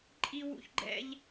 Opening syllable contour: high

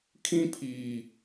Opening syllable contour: high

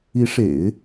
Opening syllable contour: rising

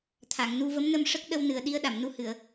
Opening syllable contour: low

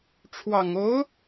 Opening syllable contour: low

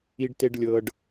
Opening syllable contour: low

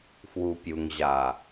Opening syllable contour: low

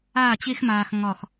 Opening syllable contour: falling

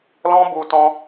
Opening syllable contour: high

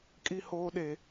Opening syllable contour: high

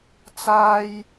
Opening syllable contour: high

